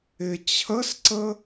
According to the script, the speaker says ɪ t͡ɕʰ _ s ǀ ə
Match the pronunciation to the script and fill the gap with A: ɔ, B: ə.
B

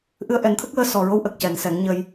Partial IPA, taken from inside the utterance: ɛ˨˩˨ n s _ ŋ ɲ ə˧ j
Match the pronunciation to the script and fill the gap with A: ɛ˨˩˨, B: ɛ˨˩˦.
B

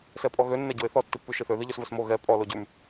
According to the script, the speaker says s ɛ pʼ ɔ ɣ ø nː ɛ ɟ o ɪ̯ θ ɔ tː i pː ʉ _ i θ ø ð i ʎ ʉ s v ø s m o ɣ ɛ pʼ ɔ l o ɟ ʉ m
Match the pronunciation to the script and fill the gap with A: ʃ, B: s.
A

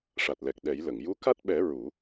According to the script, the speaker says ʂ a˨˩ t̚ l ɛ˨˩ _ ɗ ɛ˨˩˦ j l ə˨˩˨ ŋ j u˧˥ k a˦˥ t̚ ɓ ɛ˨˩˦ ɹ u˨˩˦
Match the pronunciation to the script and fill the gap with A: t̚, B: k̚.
B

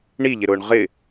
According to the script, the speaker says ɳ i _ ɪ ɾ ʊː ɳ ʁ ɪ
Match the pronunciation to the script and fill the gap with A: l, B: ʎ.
B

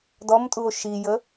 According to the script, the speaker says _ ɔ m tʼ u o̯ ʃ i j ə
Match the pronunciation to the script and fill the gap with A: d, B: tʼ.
A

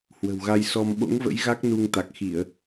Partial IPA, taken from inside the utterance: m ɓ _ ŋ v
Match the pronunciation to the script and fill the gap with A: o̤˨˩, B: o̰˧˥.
B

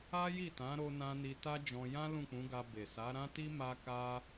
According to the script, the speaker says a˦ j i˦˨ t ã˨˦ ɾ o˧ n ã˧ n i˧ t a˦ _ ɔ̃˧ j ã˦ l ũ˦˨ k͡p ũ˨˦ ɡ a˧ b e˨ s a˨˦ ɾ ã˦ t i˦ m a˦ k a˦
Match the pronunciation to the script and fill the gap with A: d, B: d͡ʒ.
B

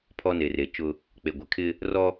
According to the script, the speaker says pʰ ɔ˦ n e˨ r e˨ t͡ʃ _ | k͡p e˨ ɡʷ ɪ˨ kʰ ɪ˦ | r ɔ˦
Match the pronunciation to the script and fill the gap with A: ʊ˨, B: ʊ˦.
B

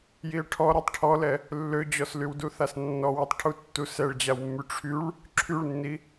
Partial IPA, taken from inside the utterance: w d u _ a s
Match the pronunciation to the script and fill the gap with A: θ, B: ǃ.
A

